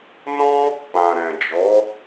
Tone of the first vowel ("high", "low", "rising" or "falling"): high